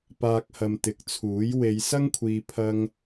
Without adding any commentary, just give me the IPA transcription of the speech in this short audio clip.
p aː˧ k̚ h ɐ˨ m t̪ ɪ˨˥ k̚ t͡sʰ uː˨˥ j w e˨˧ j s ɐ˥ ŋ kʷʰ iː˨ pʰ ɐ˧ ŋ

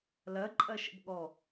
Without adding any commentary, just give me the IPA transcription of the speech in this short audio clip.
l ɜ ǃʼ ɜ ʃ ə̰ b ɠ ɔ

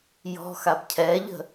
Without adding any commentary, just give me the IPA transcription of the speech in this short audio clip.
j ɔ̤ x a b cʰ ɛ ʎ ə̤

